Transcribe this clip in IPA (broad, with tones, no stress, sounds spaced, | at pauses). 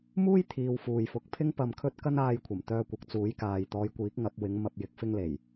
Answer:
m uː˥ j t̪ʰ iː˨ w f uː˨ j f ʊ˨˥ k̚ pʰ ɪ˥ ŋ p ɐ˧ m kʰ ɵ˥ t̚ k ɐ˥ n aː˧ j kʷʰ ɐ˨˩ m t̪ œː˧ kʷ ɐ˨ k̚ t͡s uː˨˥ j k aː˨ j t̪ ɔː˨˧ j kʷ iː˨˥ k̚ ŋ ɐ˨˥ p̚ w ɪ˨˥ ŋ m ɐ˨ p̚ j ɪ˨ k̚ f ɪ˧ ŋ l e˨˩ j